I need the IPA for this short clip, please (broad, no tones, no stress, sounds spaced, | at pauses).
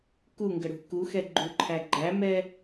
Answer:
k u ŋ ɡ ə ɽ ṳ k u x ɛ ɡ͡ǃ u ǃʰ æ ɡ͡ǃ æ m ɛ